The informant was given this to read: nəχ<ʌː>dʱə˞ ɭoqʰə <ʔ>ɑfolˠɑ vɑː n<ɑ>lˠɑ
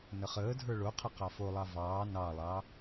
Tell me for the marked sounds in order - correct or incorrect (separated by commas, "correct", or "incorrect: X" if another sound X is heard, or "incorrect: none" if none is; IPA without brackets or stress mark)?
incorrect: əː, incorrect: q, correct